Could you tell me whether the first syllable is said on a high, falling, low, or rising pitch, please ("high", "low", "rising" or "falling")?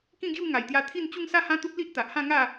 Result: falling